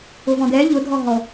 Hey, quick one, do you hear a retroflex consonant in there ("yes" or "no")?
no